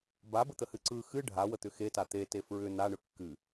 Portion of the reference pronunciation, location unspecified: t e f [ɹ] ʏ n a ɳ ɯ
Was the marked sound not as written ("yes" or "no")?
no